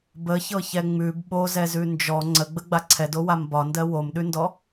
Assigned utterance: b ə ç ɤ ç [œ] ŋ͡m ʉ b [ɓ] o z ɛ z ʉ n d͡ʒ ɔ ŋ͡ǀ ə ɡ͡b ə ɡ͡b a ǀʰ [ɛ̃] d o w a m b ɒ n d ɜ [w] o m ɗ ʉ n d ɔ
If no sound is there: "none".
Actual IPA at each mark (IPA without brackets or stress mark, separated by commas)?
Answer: ɛ, ɓ, ɛ, w